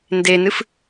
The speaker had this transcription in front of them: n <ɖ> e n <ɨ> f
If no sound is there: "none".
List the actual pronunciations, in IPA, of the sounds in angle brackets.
d, ɨ

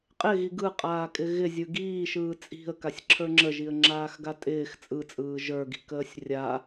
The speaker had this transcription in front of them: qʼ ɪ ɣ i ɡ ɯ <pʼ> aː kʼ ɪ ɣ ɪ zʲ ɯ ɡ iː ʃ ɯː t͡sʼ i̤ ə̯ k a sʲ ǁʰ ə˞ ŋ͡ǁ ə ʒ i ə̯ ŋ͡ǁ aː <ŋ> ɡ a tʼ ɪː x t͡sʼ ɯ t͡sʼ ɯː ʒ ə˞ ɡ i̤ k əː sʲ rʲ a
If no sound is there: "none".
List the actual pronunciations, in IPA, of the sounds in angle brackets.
qʼ, x

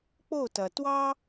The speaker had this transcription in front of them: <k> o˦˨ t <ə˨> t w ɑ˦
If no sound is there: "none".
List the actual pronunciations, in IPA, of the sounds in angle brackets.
k͡p, ɐ˨

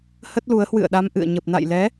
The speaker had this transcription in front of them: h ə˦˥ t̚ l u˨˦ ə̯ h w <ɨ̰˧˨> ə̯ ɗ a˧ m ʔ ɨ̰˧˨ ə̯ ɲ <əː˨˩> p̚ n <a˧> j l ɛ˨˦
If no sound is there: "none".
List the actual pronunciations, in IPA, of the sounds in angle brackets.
ɨ̰˧˨, ə˨˩, a̰˧˨

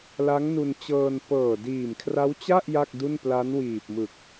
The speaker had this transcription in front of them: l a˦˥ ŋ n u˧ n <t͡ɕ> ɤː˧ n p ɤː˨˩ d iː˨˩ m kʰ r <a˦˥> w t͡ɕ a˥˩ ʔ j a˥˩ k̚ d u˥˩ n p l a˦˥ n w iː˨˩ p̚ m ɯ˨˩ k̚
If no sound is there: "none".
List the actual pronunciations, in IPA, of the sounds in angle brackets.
t͡ɕ, a˦˥

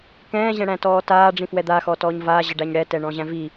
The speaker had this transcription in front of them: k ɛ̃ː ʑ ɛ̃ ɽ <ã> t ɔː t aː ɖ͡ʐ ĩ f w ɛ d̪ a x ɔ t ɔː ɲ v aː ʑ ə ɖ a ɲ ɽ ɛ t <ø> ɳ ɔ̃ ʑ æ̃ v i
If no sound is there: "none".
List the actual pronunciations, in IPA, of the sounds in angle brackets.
æ̃, ɛ

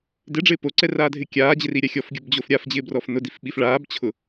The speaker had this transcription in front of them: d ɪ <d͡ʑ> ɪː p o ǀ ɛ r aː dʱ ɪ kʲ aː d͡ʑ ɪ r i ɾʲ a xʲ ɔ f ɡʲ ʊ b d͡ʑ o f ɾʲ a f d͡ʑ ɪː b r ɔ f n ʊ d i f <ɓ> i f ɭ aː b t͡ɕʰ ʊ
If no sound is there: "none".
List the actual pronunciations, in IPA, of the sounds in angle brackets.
ɖ͡ʐ, ɓ

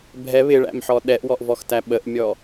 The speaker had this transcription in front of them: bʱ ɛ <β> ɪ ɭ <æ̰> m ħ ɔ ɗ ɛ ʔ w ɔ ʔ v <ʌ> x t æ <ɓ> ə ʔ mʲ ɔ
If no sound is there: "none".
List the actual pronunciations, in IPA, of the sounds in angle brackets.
β, æ̰, ɔ, ɓ

